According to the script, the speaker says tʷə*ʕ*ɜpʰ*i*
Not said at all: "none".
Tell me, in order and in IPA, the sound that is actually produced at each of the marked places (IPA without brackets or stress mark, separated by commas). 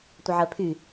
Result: ʕ, y